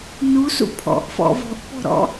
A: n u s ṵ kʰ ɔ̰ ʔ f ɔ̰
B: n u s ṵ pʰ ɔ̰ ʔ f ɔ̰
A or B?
B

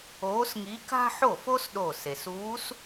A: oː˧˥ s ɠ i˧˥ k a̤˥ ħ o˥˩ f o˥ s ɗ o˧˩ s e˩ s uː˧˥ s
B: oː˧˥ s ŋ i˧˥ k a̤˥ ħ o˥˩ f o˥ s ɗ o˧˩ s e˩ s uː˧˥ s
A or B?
B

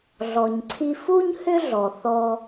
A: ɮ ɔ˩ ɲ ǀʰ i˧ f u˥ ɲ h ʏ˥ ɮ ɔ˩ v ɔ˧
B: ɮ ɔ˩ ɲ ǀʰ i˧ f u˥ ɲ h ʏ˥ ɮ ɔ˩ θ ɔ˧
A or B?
B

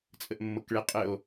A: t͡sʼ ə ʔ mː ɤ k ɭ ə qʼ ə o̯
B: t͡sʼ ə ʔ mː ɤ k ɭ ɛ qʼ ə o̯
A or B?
B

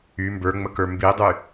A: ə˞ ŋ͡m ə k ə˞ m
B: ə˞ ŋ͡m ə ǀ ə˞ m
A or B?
A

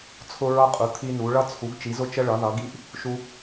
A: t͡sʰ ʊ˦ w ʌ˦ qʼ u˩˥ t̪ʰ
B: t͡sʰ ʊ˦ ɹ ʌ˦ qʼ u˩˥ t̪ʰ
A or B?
B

